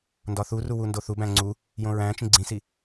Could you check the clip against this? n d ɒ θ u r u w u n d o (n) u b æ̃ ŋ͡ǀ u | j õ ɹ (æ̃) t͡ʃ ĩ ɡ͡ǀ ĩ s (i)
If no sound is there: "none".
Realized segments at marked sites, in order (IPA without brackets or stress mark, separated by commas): θ, æ̃, i